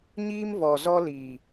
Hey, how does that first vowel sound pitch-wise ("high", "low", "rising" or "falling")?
high